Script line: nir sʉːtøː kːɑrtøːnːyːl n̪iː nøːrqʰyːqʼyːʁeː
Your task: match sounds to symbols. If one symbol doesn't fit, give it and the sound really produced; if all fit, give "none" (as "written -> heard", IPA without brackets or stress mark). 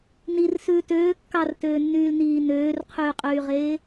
none